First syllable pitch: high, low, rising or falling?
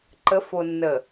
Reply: rising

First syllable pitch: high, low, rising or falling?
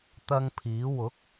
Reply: high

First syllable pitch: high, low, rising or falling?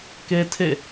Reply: high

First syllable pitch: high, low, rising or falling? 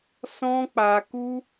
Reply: high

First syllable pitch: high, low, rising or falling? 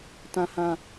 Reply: low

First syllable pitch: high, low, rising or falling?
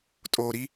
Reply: low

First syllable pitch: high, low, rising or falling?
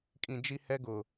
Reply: low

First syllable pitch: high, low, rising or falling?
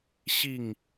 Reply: falling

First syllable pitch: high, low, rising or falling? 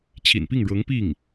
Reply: low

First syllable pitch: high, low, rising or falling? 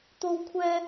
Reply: high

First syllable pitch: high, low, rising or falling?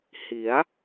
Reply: rising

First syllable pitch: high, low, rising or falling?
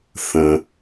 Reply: low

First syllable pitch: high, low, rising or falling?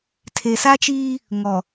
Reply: low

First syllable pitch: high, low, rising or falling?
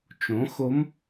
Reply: rising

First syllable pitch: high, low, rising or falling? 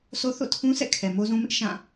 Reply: high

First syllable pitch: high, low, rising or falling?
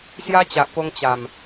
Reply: high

